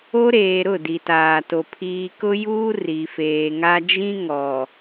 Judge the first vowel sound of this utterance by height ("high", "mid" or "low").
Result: mid